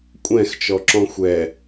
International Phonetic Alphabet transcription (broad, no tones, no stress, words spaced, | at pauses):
kʷʼɛ̃xt͡ʃɔǁɔ̃ xʷɛ